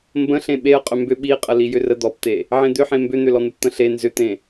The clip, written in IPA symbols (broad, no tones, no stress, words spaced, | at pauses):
mbə̃ɬẽ ɓeə̯ qʼʏmbʏ ɓiqʼə lijʏrə d̪ɔpt̪e | ʕẽd̪ʏħẽ mbʏn̪ʏlɔn̪əp t̪ə̃ɬe nzʏt̪ẽ